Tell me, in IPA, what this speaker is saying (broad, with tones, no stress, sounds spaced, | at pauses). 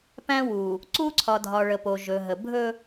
p æ̃˦ w u˨ | ǀ u˦ ǀʰ ɒ˨ dʱ ɒ˨ ɭ ə˨ p o˨ ʒ ɵ˨ ɦ ə˨ bʱ ɵ˦